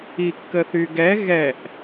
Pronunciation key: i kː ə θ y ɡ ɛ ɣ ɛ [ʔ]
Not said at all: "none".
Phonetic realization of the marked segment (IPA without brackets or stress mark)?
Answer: ʔ